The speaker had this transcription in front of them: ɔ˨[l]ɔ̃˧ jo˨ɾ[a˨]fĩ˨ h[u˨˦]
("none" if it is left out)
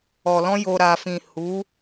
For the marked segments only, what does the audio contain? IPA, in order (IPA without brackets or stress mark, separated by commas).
l, a˨, u˨˦